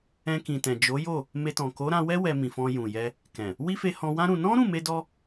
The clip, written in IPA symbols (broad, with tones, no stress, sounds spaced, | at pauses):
ɛ̃˧ k ĩ˨ t ɛ̃˨ d͡ʒ o˨˦ j o˦˨ | m e˧ t ɔ̃˨ k o˨˦ ɾ ã˧ w ɛ˦ w ɛ˧ m ĩ˨ f ɔ̃˧ j ũ˨ j ɛ˧ | k ɛ̃˨ | w i˦ f e˧ h ɔ̃˧ w ã˦ ɾ ũ˧ n ɔ̃˦ ɾ ũ˦˨ m e˧ d ɔ˧